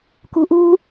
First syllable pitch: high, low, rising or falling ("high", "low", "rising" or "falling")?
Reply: low